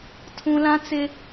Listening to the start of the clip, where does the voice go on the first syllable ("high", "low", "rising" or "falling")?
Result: high